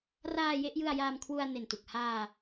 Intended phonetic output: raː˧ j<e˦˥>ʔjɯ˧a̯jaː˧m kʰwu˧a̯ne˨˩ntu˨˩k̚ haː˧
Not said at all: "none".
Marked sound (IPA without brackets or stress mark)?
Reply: e˥˩